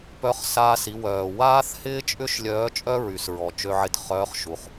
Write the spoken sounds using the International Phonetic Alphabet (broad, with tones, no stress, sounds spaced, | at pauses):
p œ˧˥ χ s aː˧ s i˩˧ w œː˩ w aː˥ θ h ɪː˥ t͡ʃʼ ʏ˥ ʃ lʲ œː˧˥ t͡ʃʼ œ˥ ɹ y˩˧ s ɹ ɔ˩ t͡ʃ ø˧ ʕ ɪ˧ t χ œː˧˥ χ ʃ u˩˧ χ